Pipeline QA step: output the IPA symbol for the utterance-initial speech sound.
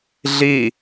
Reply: ɮ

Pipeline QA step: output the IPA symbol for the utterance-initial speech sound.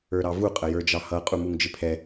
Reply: ə˞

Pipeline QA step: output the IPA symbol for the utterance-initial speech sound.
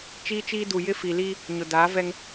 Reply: t͡ʃ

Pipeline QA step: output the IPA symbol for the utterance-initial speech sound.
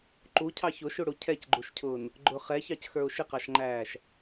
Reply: ǃ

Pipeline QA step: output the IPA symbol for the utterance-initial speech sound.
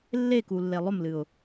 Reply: lː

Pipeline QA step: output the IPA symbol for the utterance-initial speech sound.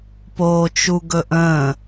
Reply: p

